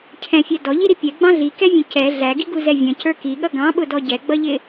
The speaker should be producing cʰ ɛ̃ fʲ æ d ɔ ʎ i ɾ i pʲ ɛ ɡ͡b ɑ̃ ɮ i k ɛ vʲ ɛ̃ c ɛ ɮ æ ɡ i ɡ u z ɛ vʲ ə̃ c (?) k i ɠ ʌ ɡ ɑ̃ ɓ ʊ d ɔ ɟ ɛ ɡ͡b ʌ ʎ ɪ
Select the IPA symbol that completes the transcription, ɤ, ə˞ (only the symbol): ə˞